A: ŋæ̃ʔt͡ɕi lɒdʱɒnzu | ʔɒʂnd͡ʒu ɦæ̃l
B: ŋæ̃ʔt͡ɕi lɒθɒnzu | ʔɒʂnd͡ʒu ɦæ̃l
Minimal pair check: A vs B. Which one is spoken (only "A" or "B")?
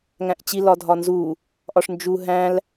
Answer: A